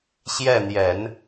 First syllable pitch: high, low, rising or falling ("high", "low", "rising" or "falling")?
falling